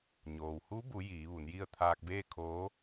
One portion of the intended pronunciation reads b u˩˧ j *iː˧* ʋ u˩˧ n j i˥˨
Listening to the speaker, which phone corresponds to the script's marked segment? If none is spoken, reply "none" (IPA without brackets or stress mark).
iː˩˧